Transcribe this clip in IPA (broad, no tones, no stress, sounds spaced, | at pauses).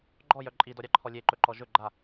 ɡ͡ǃ ɔ j œ ǃʼ i d ɔ ɾʲ ɑ ǃʰ ɔ lʲ e ǃ ɵ ǃ ɔ ʒ ɵ ɡ͡ǃ a